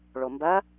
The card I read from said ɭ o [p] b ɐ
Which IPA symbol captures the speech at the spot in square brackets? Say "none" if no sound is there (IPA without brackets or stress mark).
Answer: m